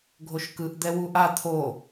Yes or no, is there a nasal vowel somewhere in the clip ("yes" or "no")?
no